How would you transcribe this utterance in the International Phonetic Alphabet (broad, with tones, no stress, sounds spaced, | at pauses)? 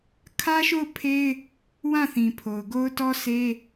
kʰ ä˦ ʃ o˦˨ ʊ̯ pʰ e˦ ɪ̯ | w ã˦˨ θ ĩ˨ pʰ o˨ ʊ̯ ɡ o˦ ʊ̯ t ɔ˦ s e˦